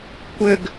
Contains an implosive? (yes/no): no